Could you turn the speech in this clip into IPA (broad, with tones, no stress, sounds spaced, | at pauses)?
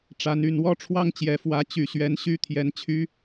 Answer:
ʈ͡ʂ a˨˦ n y˨˩ n w ɔ˦ ʈ͡ʂʰ w ɑ˦ ŋ t͡ɕ j ɛ˨˩ f w ä˨˦ t͡ɕ y˨˩ ɕ ɥ ɛ˨˦ n ɕ y˦ t̪ʰ j ɛ˨˦ n t͡ɕʰ y˨˦